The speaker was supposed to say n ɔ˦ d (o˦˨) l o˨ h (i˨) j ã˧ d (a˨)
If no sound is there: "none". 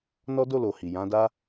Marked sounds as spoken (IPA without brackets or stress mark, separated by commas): o˦˨, i˨, a˦